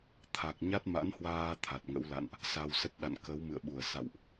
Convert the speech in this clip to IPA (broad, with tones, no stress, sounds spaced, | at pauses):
t̪ʰ a˨˩ k̚ ɲ a˦˥ t̚ m a̰˧˥ n h w aː˧ t̪ʰ a˨˩ t̚ ŋ ə̰˧˥ w l a̰˧˨ n ʔ | s a˧ w s ə˦˥ t̚ ɗ a̰˧˨ n k ə˨˦ w m ɨ̰˧˨ ə̯ ɓ u˧˩ ə̯ s a̰˧˨ w ʔ